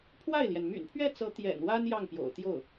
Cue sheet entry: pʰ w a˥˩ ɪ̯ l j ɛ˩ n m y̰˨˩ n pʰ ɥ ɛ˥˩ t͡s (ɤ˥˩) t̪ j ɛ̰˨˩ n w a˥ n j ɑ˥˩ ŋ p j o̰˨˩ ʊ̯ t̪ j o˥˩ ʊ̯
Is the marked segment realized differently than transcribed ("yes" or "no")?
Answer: yes